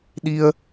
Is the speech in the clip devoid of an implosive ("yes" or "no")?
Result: no